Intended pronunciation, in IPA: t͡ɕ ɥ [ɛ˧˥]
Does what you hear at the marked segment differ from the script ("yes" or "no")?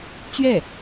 yes